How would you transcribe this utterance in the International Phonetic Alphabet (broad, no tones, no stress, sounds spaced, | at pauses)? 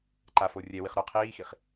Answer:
ǃ a f o rʲ ɛ w i χ ɾ ɔ qʰ iː x i χ